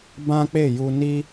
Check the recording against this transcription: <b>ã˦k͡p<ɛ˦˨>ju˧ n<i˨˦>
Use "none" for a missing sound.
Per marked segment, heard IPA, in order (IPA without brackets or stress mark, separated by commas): b, e˦˨, i˦